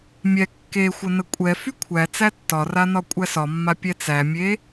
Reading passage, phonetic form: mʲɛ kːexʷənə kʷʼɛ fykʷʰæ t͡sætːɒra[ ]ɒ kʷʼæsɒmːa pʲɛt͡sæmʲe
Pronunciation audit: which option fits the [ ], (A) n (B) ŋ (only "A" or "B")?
A